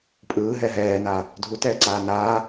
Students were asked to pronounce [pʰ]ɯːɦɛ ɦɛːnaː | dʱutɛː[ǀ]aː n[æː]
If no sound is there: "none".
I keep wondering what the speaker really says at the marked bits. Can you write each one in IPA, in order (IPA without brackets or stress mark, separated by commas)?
pʼ, ǀ, aː